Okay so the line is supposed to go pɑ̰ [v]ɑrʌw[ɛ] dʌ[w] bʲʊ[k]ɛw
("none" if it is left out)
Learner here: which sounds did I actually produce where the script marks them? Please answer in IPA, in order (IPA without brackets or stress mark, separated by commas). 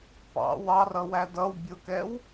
w, æ, w, k